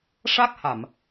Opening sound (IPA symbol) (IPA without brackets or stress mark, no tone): ʂ